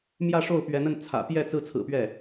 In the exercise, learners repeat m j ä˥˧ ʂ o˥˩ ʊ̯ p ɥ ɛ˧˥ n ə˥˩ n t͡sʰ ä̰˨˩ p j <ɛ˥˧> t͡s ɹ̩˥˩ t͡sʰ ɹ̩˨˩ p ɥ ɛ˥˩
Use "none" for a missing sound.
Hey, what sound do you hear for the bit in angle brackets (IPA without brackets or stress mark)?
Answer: ɛ˥˧